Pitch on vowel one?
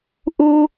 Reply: high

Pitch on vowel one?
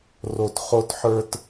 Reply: high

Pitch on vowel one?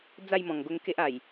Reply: falling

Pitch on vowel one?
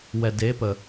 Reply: low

